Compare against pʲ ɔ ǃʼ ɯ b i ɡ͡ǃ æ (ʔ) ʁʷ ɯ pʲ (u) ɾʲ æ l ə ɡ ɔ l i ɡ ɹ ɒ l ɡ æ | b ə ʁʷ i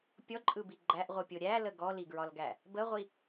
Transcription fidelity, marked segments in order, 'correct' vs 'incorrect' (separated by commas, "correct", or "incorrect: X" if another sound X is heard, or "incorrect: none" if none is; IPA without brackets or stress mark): correct, incorrect: o